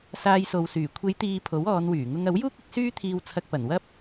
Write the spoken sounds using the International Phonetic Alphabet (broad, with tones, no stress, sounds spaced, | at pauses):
s aː˧ j s o˨ w s yː˨˩ kʷʰ e˨˧ j t̪ iː˨ pʰ o˨˥ w ɔː˨˧ n w yː˨˩ ŋ ʊ˧ ŋ ɐ˨˥ w j uː˥ k̚ ɪ˨˥ k̚ s yː˥ t̪ʰ iː˧ w t͡sʰ ɐ˧ k̚ p ɐ˨˩ n w ɐ˥ p̚